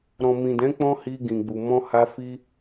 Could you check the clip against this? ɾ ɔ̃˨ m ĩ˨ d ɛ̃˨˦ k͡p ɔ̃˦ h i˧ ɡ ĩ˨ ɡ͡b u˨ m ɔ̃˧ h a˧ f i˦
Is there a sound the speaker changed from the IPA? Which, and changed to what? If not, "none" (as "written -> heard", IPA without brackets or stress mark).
none